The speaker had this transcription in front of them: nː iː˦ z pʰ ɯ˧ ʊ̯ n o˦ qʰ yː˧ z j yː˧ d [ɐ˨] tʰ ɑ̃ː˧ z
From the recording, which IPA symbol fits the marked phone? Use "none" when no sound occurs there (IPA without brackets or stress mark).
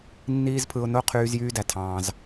æ˨